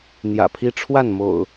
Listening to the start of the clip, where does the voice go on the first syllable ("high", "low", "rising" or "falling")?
low